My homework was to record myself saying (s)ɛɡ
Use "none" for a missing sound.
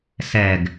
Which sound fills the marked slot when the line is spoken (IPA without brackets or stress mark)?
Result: s